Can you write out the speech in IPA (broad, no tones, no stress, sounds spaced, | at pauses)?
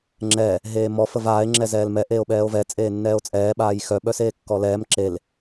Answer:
ŋ͡ǁ ɛ | ɦ eː m ɔ f ə v aː e̯ ŋ͡ǁ ɛ z ɛː l m ɛ ʔ eː o̯ ɓ ɛː o̯ v ɛ t͡sʼ eː nː ɛː o̯ t͡sʼ ɛː ɓ aː j x œ ɓ œ s eː kː ɔ l ɛː m ǁ e l